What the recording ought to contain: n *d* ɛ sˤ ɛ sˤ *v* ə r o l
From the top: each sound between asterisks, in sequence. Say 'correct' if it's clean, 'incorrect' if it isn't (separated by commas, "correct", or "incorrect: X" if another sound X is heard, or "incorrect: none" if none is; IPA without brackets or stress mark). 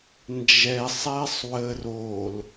incorrect: d͡ʒ, incorrect: w